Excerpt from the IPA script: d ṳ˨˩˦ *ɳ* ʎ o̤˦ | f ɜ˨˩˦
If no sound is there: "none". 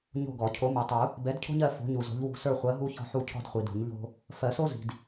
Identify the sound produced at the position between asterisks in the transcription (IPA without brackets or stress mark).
ɲ